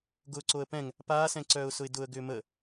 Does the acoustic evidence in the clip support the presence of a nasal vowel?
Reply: yes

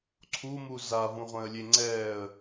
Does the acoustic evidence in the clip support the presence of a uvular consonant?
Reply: yes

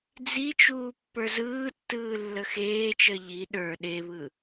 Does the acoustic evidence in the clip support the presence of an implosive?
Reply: yes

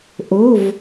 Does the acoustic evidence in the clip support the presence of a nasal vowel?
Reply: no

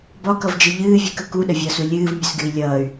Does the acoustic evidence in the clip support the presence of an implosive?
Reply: yes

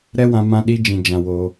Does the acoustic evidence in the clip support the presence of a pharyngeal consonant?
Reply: no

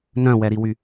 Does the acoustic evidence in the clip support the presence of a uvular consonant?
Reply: no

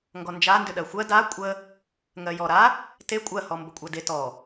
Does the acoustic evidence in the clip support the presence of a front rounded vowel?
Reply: yes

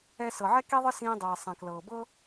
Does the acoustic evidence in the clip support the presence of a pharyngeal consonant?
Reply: yes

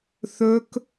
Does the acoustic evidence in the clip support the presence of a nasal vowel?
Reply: no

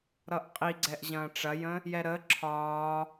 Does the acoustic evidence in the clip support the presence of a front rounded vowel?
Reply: no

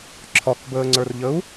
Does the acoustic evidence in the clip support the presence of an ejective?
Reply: no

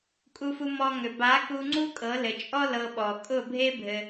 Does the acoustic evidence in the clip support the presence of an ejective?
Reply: yes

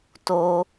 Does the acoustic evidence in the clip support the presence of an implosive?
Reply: no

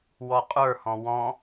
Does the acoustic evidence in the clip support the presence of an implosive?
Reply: no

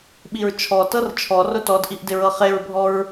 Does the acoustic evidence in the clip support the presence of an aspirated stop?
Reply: yes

